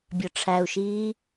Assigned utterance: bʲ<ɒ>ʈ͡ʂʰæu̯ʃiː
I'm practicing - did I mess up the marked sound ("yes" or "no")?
no